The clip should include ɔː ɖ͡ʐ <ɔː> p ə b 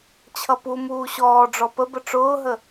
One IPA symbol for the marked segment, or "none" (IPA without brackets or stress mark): ɔ